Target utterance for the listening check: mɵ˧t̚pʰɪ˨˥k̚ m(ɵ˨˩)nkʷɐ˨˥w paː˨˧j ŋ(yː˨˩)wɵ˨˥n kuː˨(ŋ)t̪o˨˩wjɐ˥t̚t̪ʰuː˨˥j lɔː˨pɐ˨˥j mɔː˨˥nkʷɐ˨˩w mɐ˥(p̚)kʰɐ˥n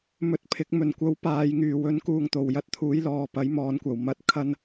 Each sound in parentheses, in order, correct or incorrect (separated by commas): correct, correct, correct, incorrect